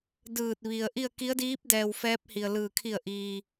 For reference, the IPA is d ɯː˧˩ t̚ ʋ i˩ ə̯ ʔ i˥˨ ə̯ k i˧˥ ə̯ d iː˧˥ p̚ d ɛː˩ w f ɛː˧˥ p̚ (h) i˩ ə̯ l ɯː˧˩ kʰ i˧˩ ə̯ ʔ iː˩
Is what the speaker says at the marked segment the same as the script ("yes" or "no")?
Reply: yes